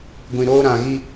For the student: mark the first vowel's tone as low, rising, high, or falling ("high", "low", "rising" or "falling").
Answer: low